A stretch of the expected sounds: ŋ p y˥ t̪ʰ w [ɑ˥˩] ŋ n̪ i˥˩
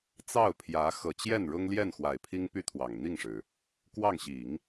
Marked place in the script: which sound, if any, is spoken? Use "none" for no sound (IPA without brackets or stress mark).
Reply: ɑ˨˩